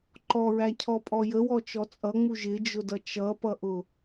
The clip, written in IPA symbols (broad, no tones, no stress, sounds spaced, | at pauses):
ǃ ɔ ɹ æ cʰ ɔ pʼ ɔ j ə w ɔ t͡ʃ ɔ t͡sʼ ʌ ŋ͡m u ʒ ɪ d͡ʒ ʊ d ʌ t͡ʃ ʌ p ʌ ʔ ʊ